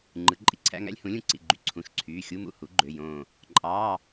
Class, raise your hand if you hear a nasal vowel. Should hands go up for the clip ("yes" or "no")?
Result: yes